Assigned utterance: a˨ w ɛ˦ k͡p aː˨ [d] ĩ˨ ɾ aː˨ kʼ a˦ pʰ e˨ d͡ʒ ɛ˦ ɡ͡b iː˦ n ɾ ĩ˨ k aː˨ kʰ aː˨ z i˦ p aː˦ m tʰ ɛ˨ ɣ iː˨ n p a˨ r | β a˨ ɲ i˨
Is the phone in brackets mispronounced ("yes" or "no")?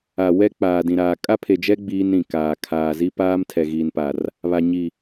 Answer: no